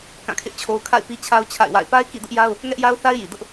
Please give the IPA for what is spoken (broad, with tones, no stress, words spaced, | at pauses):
kã˦˨kʰɪ˦ʔt͡ɕʰo˦ʊ̯ kʰa̰˦˨ɪ̯pi˦t͡ɕʰa˦ʊ̯ t͡ɕʰa̰˦˨ɪ̯wa̰˦˨ɪ̯ pa˦ɪ̯ kḭ˦˨dʊ˦ʔja˦ʊ̯ | ŋɛ˦ʔja˦ʊ̯θa˦ɪ̯ji˨ dʊ˦ʔ